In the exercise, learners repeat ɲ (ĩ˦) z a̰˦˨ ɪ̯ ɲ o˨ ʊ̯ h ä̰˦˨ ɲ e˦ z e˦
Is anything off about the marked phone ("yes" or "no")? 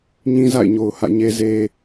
no